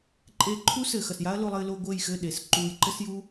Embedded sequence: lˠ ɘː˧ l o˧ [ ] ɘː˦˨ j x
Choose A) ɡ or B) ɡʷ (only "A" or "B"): B